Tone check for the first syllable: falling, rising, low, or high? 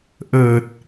low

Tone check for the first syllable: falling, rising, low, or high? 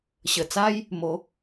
low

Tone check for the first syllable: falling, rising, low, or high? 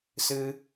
high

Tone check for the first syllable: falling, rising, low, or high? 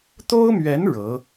high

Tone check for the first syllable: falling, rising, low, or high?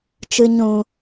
low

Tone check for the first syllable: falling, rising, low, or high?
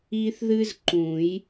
high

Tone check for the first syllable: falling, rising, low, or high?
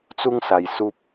high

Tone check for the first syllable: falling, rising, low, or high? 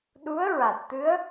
rising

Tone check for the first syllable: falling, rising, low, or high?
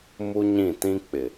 high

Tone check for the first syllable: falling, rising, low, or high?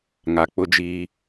low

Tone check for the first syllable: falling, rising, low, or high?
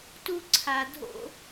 high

